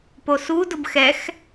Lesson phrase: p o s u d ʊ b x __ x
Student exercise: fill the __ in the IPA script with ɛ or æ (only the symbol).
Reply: ɛ